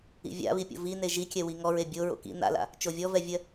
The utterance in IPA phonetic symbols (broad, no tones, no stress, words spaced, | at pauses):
ḭvʲa̰βipʲo̰ vi neʒikʲɛwi ŋɔɹe bʲo ɹo̰kḭ na̰la̰ | t͡ʃovʲɔvɛvʲɜ